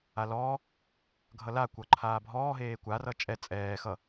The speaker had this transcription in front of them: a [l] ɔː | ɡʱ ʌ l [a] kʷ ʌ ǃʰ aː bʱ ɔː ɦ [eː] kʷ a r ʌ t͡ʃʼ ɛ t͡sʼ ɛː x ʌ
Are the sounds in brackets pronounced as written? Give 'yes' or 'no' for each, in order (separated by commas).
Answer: yes, yes, yes